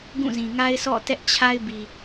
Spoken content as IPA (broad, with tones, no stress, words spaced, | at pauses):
ɡũ˦˨zĩ˨ŋa˦ɪ̯sʰɔ̰˦˨ tɛ˦ʔt͡ɕʰa˦ɪ̯bi˨